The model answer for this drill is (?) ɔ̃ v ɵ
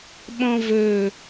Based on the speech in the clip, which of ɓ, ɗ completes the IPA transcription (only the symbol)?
ɓ